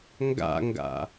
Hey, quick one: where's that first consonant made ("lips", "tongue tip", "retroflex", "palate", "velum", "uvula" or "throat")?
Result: velum